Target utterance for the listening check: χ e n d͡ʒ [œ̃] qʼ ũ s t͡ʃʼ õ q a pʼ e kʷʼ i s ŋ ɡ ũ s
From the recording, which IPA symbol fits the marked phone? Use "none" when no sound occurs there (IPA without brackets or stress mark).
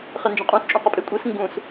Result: ɛ̃